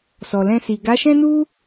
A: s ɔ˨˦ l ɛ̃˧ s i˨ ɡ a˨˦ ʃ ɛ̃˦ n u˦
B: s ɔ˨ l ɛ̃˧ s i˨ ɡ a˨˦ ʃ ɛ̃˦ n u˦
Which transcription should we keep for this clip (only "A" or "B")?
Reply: B